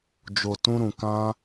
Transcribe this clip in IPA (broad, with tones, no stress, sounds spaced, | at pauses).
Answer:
d͡ʒ o˨ t ũ˧ ɾ ũ˨ k ã˧